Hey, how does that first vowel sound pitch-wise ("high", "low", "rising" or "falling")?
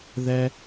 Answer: high